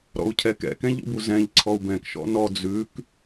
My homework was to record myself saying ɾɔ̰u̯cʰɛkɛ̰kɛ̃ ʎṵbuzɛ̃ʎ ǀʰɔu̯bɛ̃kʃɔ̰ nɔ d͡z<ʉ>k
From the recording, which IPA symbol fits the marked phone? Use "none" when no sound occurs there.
ʉ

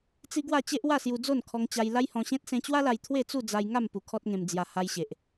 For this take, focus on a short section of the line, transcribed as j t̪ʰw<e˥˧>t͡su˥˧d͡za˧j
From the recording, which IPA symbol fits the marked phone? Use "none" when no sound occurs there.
e˥˧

